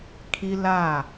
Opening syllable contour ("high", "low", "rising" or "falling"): high